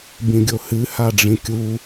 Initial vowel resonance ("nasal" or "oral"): nasal